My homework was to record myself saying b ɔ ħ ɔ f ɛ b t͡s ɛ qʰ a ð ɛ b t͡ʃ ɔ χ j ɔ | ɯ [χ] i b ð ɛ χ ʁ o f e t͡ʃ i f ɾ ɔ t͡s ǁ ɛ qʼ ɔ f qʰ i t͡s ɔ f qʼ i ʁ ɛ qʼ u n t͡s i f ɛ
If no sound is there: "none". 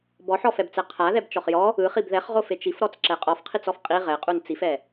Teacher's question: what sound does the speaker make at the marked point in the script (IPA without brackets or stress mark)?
χ